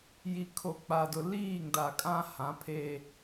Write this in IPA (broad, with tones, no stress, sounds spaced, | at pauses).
j i˨ kʰ o˨ k͡p a˨ d ʊ˨ l iː˦˨ ŋ d a˨ kʼ ã˦ h ã˨˦ pʰ e˦